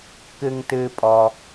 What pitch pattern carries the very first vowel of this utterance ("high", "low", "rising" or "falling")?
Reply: low